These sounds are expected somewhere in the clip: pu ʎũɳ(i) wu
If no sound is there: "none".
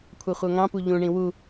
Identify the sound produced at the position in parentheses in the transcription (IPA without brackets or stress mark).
ĩ